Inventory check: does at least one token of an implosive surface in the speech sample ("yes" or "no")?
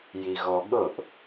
yes